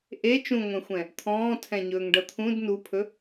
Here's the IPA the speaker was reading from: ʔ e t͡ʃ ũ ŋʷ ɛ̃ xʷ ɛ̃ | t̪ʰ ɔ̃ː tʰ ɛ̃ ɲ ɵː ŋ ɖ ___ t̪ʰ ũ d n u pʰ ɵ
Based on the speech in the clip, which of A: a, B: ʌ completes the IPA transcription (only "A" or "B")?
B